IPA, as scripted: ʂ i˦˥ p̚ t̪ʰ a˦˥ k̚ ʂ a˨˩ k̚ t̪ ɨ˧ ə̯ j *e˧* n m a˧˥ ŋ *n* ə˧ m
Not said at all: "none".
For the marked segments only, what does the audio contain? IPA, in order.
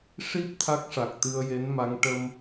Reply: e˧˥, ʈ

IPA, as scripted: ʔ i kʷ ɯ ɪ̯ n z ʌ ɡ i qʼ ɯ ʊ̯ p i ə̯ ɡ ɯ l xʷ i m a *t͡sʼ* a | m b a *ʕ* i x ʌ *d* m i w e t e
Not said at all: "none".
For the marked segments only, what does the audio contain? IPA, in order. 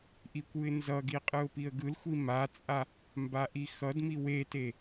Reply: t͡sʼ, ʔ, d

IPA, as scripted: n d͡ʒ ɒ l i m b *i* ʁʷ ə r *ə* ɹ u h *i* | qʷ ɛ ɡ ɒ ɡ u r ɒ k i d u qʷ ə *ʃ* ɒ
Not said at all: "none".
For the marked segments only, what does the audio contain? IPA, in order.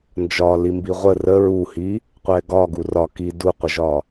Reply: i, ə, i, ʒ

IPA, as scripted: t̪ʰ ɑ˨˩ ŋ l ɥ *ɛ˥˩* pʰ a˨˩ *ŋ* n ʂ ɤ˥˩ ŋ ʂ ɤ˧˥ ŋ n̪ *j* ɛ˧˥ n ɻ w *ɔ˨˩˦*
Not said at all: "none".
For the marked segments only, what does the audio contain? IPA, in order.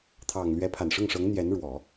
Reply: ɛ˧˥, none, j, ɔ˨˩˦

